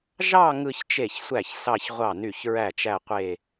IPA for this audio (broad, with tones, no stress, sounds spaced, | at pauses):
ʒ ɑ˥˧ ŋ ɯ˥˧ ç t͡ʃ e˥˩ ç sʷ æ˥˩ ç s ɑ˥˧ ç ʁʷ ɑ˥˩ n y˥˩ ç ɹ æ˥˩ t͡ʃ æ˥˧ qʷ e˥˧